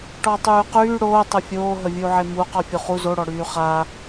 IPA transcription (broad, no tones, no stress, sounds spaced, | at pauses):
ʈ ɔ tˤ yː q yː ɽ oː tˤ ə fʲ oː ɦ ə vʲ u ʕ e m u q ɔ fʲ u χ u z o ɽ ɔ ɽ yː χ a